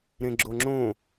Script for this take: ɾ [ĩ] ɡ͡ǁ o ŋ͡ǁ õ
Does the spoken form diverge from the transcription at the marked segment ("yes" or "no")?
yes